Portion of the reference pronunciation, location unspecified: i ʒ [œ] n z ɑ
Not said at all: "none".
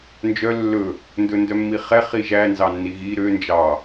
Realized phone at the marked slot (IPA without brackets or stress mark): æ